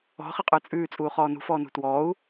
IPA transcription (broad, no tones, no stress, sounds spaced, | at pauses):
ɔ̤ χ ɪ qʼ ə˞ t͡sʼ ʉː t͡sʼ uː χ ɔː n ṳ f ɔː n ṳ t w ɔː u̯